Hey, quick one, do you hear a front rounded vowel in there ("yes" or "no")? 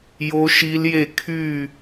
yes